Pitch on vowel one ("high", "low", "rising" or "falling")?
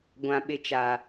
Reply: low